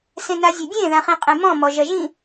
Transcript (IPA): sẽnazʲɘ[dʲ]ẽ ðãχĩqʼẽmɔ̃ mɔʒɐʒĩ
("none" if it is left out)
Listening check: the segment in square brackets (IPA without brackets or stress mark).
dʲ